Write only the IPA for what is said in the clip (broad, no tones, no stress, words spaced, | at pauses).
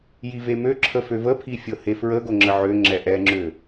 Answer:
jivemøǁʰə føvəpʰi fʲɤhefɹə ɡoŋ͡ǁəʕø ŋ͡ǁɛʔɛŋ͡ǁø